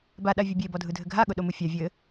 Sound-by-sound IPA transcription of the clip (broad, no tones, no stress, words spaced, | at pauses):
baɗa vʲɨbʲe bɔdʱɯdʱɘɡʱa ɠʊɗomɯfʲa vʲɘ